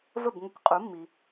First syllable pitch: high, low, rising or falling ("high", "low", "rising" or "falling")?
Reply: falling